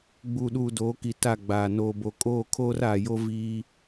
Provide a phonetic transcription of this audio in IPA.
ɡ͡buː˨ɗuː˨doː˨˦ki˨ ta˦˨ɡ͡baː˨ noː˨bo˨ kʼoː˦˨kʰoː˦raː˨ jo˦ viː˦

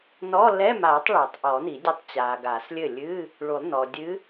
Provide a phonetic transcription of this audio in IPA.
nɔ˧˥˧ lɛ˧˥˧maː˨˩˦tˤ ɭe˨˩˦tˤʔɔ˨˩˦ni˨˩˦dʲe˧˥tˤ t͡ɕaː˨ɡa˨˩˦slʲɘ˥˩ lʲɨ˧˥˧ | ɭu˨˩˦lˠnɔ˨dʲɨ˧˥

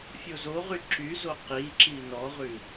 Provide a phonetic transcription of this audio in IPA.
fʲozoʁy ǁyzo qi ǁinɔʁʉ

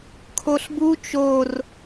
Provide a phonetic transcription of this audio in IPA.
kʰoɬbu t͡ʃor

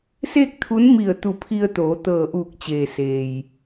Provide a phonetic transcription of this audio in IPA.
seː˥˨k̚t̪ʰu˧˥nmi˧˩ə̯ t̪u˧˩pʰi˧ə̯t̪oː˩˧ t̪ɤː˧˩ʔuː˧˩k̚t͡ɕeː˩ seː˩j

